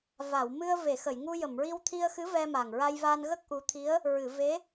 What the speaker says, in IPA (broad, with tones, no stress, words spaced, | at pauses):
va˨˩˨wmɨ˧ə̯ ve˨˩˨xə˨˩˨jŋu˧jə˨˩˨m ɹi˧wt̪ʰi˧ə̯xɨ˧˥ vɛ˧ma˨˩ŋ ɹa˧jva˧nɣə˦˥k̚ ʔu˧˥ t̪ʰi˧˥ə̯ | ɹɨ˨˩˨ve˧˥